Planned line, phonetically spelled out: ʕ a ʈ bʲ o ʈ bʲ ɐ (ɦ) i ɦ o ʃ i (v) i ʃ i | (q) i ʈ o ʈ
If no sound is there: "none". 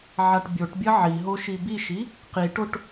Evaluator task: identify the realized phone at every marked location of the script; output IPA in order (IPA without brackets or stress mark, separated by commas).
ʕ, b, q